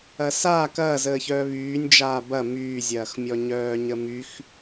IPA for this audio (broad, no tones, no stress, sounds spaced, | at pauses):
ɐ s aː k ɐː z əː ç œː β yː nʲ d͡ʒ aː b ɐ m yː zʲ ɐː x mʲ ɔ ɲ œː ɲ ə m y x